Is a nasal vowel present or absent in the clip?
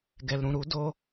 present